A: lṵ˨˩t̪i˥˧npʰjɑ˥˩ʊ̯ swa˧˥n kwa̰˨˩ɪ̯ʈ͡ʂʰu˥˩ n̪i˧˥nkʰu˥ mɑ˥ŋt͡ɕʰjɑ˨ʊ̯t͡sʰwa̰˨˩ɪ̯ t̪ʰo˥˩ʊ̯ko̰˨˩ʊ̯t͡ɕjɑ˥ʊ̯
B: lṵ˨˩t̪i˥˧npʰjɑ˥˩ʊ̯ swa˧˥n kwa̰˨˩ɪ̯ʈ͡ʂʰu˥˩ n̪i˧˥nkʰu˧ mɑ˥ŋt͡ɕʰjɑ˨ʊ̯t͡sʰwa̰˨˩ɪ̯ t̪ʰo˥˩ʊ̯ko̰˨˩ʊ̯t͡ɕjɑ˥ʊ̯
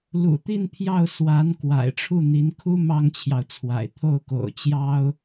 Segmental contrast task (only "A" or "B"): A